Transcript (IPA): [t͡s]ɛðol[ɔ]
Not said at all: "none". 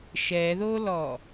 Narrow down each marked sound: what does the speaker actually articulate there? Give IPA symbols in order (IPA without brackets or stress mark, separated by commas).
ʃ, ɔ